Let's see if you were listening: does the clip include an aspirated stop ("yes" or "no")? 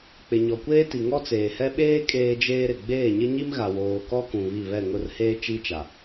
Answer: no